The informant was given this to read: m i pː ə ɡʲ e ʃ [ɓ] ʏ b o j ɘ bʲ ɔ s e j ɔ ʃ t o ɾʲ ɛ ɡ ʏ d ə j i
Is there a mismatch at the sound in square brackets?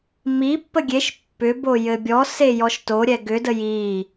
yes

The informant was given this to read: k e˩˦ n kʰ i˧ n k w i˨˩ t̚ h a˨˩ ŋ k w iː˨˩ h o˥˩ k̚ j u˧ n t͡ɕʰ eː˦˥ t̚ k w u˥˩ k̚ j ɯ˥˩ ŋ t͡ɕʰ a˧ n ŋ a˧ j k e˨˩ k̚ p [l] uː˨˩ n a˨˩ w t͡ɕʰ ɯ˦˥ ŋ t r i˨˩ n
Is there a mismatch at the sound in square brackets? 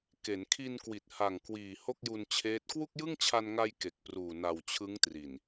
yes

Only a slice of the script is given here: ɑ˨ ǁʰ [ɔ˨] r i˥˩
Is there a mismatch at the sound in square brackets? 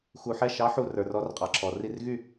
no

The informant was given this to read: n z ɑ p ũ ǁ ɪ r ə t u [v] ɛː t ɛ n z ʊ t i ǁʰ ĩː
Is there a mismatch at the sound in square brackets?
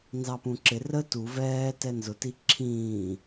no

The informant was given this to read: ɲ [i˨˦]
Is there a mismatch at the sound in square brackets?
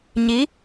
no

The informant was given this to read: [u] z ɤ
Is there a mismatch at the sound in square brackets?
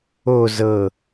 yes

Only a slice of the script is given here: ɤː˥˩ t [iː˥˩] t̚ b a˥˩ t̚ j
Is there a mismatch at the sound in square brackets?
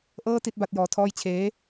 yes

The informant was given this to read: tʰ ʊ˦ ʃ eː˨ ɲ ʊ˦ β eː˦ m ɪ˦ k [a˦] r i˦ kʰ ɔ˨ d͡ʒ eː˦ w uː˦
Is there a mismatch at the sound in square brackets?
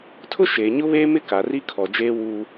yes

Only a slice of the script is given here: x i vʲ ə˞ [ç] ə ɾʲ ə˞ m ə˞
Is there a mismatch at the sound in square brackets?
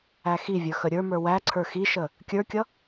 yes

